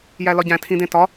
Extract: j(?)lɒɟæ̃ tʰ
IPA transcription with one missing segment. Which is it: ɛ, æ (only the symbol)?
æ